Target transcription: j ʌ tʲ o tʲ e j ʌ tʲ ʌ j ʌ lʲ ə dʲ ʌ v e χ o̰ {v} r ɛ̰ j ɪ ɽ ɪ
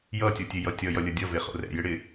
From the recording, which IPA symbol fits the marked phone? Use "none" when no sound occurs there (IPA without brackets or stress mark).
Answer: none